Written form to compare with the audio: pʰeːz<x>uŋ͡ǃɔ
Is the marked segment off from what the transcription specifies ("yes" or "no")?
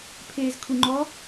yes